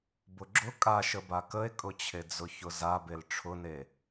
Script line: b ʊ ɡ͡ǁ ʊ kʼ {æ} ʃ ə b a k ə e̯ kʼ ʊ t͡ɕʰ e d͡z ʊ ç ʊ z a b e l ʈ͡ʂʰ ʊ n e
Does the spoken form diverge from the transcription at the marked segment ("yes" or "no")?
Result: yes